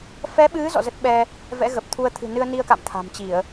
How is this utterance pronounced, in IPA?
fɛ˨˦ɓɨ˨˦ zɔ̰˧˨zə˦˥t̚ɓɛ˧ | vɛ̰˧˥ɣə˨˩p̚t̪ʰu˧ə̯ t̪ʰɨ̤˨˩nɨ˧ə̯ni˧ə̯ka̰˧˨m t̪ʰa̤˨˩mt͡ɕi˧˩˨ə̯

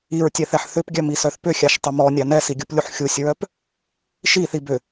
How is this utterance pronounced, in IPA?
iɹtʲɛθɛħ θʏpɡʲœmisœθ pʏxʲaʃtˤʏ mɔnʲa nɛsiɡʲuplʲuħ xʲusʲɹœp | ʃiθi bʏ

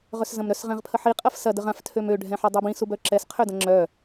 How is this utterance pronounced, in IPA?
ʁœszɐ̃mɾœs ʁɛ̃ʁpʰəħi qʼɐfsɐ dəʁãf tʰømø ɖʱɛ̃ħɐdˤœbĩs ubœǁɛs qʰødɐ̃ŋ͡ǁœ

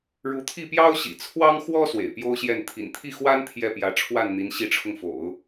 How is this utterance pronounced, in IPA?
ɻu˧˥t̪ʰi˥˩pjɑ˥ʊ̯ɕḭ˨˩ t͡sʰwɑ˥ŋxwɔ˥ swḛ˨˩ɪ̯pjo˥ʊ̯ɕjɛ˥˩n t̪ʰḭ˨˩nt̪ʰi˥˩xwa˥n t̪ʰjɛ˥˩pjä˧˥ ʈ͡ʂʰwa˥˩nn̪i˧˥n ɕi˧˥ʈ͡ʂʰʊ˧ŋfo̰˨˩˦ʊ̯

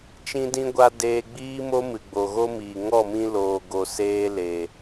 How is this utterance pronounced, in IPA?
t͡ʃĩ˦dĩ˦ɡʷa˦ deː˧ɡ͡biː˦mo˦ mɨ˨ɡ͡bo˨ɣo˦miː˨ ŋɔ˦˨mĩ˧ loː˨ɡo˨ seː˧ le˨

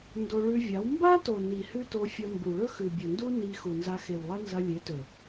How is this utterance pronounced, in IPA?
ndo˧ɭʉ˧vʲa˨˦w mba˦to˨ ni˨ hʉ˦to˧fʲɐ˧ mbu˨ ɭɵ˦xʉ˨bʲɵ˨ndu˦ ni˧ xu˨nza˧xe˨wlˠɐ˦ nzɐ˧lʲe˨˦tɵ˨

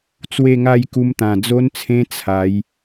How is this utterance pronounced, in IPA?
t͡swe˥˧ŋa˥˧jku˧mt̪ã˨˩ d͡zo˧nt͡sʰẽ˧ t͡sʰa˨˦j

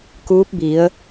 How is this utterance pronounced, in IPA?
kuː˧˥p̚ bi˩˧ə̯

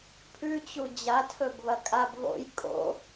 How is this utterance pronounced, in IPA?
pʰʉt͡ɕu d͡ʑa tʰɵbβɐkʼab βo̰j kʼo̰

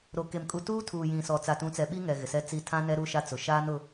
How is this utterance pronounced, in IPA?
ɾo˨ke˨m kʼu˨tuː˦ tʰuː˨jĩ˨sɔ˨ t͡sa˨tũ˨˦t͡sɛ˨ ɓi˦ŋɛ˨ ɣɪ˨ sɛ˦t͡si˦ tʰã˦nɛ˦ ɾu˦ʃa˦t͡sʊ˨ ʃaː˦nʊ˦

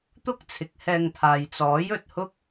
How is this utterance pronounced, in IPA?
t̪ʊ˥k̚t͡sʰɪ˨˥k̚hɛː˧ŋ pʰaː˨jt͡sɔː˨˥jɵ˨t̚ hʊ˥k̚

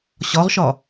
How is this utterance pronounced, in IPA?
ɕɒʁʃɒ

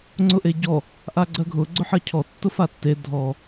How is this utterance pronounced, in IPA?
ŋ͡ǀʊʔeɟɔ | ʔaɡ͡ǀɜɡʱʊ ɡ͡ǀʊħɜcʰɔ tːʊfatːe dʱɔ

